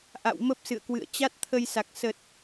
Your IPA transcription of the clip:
ʔa̰˧˨w mə˦˥p̚ sɨ̰˧˨ə̯kwɨ̰˧˨ə̯ t͡ɕa˦˥t̚t̪ʰə˧jsa˨˩k̚ sə˨˩t̚

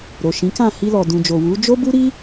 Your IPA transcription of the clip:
ɾo˨ʃĩ˨˦kã˦˨ hi˧lɔ˨dũ˨d͡ʒo˨ wu˨˦ d͡ʒo˦bu˦ɾi˦

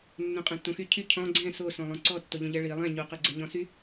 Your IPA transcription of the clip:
nːõqʼɛ̃tːõxy cʰy cʰɔ̃ ɡ͡ǀɛ̃ sosõ lˠõǀɔtːoʎõ ʎɛɭi lˠɛ̃ ɲoqɛɡ͡ǀɛɲɔ̃ sy

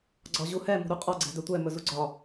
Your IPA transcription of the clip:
ɡ͡ǀɒʑuhɛ mṳɾuqʼɒ ɡ͡ǀɛ̤dɵtʷɛ mɵzuɡ͡ǀɒ

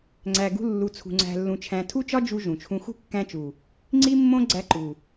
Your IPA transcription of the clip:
ŋ͡ǀæ˨ɡṳ˧ lːu˨t͡sʰṳ˨ ŋ͡ǀæ̤˧lːũ˧t͡ʃʰæ̃˧ tʰu˦t͡ʃɒ˦ d͡ʒu˧ ʒũ˨t͡ʃʰũ˦ xṳ˦kːæ̃˧t͡ʃu˨ | ŋ͡ǀi˦mːõ˦ ɡ͡ǀæ˧ ǃu˨

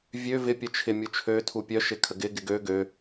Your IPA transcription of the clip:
vʲø vɪ pʲœt͡ʃʰɪ mʲut͡ʃʰø tʰupʲœ ʃɪkʰəɡɪ ɡɪɡø ɡø

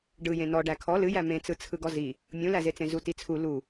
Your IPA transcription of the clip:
ɖɯjẽ nɔɖæ kʰɔ lɨjæ mẽt͡sɯ t͡sʰɯɡɔzi | mʲũlæzet͡sẽ zutit͡sʰu lu

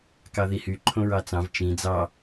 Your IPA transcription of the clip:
kɑðihy ǃʰõɹɑt͡sɑ̃v t͡ʃĩ d͡zɑ

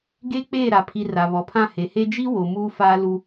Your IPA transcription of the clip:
ɡe˦ k͡peː˦˨ɾa˨ pʰi˨ ra˨βɔ˨pʰã˦˨ he˨he˦ d͡ʒi˦wo˨ muː˦faː˦lu˦

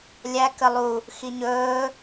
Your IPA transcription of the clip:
lʲæ kəlˠu | xiɲɵː

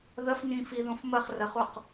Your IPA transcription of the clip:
ðɐfnĩ fiðõf mɐχrɐχuq

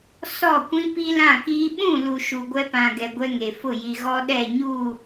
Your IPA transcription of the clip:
sɔ˦˨kʷĩ˦ pi˦lã˦˨kiː˦ ɓũ˦˨lu˨ ʃu˨ɡʷɛ˦pã˨ɡɛ˨ ɡʷɛ˦ŋe˨ fʊ˦˨ji˨ɣɔ˦ ɗɛ˦˨ɲu˦˨

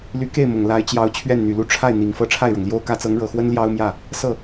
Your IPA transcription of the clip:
ly˧˥ke˥˩ɪ̯mʊ˨˩ŋ la˧˥ɪ̯t͡ɕjɑ˧˥ʊ̯ t͡ɕʰɥɛ˥˩nn̪y˨˩lu˥˧ ʈ͡ʂʰa˥˩ɪ̯ n̪i˨˩ŋ fɤ˥ʈ͡ʂʰa˥˩ɪ̯ɻɤ˩ŋljo˥ʊ̯ kä˧˥t͡sɤ˧˥ŋɻɤ˨˩xwə˥n ljɑ˥ʊ̯mjä˥˩ | sɤ˥˩

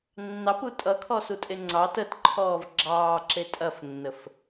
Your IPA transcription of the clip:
nːɑpu tʼʌkʰɔsutʼe ŋ͡ǀɑt ətǃʰɔːv ɡ͡ǁɑːǁe tʼɐfnːəf

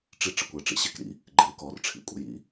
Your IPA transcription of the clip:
ʈ͡ʂi˦ ʈ͡ʂɪ˨kʷəː˨ʈ͡ʂḭ˧ ɕɪː˦kɾḭ˦ | ɡ͡ǃe˨˦ʊ̯kɔː˨rʈ͡ʂʰḭ˨kʷʼə̰˨ jḭ˦

